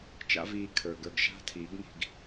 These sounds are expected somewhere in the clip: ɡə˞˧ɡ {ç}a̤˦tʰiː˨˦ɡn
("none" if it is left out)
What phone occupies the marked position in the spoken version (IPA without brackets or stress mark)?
ʃ